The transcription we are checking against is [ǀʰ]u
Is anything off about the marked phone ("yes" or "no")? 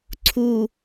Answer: no